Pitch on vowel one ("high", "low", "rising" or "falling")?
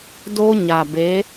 high